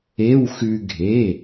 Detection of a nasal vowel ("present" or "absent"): absent